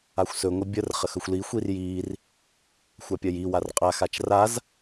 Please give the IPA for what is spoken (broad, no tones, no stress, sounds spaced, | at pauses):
a xʷ s ɵ ŋʷ ə bʲ ə r χ ə x ɵ xʷ l i xʷ i r j i r | xʷ a pʲ ɜ j i w a r qʼ a x a t͡ʃ r a z